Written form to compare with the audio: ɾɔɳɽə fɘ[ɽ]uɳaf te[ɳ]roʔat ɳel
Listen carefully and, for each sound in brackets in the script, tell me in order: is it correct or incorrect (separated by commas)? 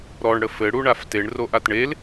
correct, correct